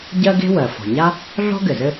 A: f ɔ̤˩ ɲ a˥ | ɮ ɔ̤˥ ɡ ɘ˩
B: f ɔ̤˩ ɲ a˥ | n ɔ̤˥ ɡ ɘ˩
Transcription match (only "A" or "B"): A